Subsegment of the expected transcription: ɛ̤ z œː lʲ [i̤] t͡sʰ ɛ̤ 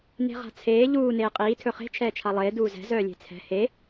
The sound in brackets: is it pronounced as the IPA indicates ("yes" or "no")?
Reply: no